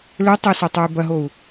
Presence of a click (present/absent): absent